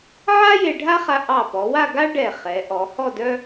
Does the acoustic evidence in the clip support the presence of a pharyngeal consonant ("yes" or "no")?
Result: yes